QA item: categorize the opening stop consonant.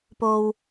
plain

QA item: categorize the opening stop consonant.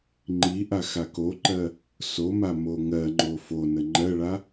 click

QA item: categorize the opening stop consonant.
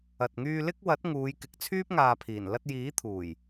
plain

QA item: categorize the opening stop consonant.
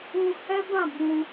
plain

